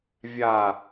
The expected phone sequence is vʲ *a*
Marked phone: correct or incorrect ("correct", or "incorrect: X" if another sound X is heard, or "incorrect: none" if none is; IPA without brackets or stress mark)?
correct